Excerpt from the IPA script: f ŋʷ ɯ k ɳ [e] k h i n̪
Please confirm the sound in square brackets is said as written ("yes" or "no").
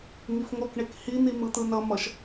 yes